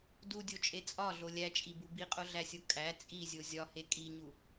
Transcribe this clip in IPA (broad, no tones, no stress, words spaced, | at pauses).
dudʲot͡ʃʼe t͡sʼɒɮo lʲæt͡ʃʼibu biqʼoɮæsʲo kʼæ t͡sʼizʲo zʲɒhe kʼiɲu